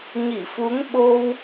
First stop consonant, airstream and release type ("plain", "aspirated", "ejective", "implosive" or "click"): implosive